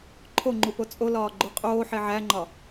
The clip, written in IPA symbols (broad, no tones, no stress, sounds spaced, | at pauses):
ǃʰ o ŋ͡ǃ u p o t͡sʼ o l ɒː ɡ͡ǃ u qʼ oː ħ e ʕ æ ŋ͡ǃ ɒ